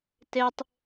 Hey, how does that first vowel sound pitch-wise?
high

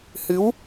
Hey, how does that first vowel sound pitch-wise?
rising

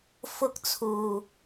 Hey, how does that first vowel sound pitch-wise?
high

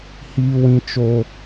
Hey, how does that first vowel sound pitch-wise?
high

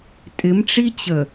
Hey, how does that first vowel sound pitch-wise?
rising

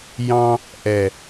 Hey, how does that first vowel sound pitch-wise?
high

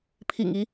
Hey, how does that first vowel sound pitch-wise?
low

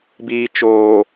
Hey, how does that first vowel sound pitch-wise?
low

